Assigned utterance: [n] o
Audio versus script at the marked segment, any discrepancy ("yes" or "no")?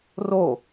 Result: yes